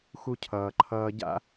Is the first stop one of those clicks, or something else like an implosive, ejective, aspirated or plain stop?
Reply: aspirated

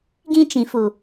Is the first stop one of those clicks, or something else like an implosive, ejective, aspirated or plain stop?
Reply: plain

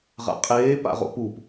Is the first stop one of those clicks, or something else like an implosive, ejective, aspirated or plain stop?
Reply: ejective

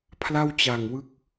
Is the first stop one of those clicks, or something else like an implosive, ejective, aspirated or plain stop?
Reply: aspirated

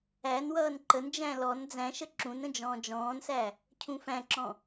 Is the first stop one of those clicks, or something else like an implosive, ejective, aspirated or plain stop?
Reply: click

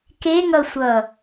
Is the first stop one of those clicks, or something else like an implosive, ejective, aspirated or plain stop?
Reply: plain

